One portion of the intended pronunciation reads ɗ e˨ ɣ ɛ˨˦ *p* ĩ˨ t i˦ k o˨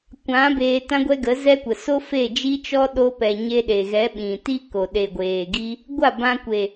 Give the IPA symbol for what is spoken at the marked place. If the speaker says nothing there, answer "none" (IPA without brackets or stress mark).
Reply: ɓ